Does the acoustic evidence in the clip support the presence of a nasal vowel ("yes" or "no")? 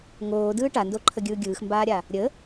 no